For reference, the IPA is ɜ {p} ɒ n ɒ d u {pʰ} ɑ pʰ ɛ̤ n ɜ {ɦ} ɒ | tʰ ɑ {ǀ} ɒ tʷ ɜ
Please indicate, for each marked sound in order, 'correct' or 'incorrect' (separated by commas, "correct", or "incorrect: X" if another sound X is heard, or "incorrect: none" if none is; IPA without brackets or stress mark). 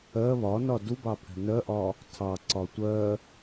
incorrect: β, incorrect: b, incorrect: ʔ, correct